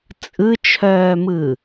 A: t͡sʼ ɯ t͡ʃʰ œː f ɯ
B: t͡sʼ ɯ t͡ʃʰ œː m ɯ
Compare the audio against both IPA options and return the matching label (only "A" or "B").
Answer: B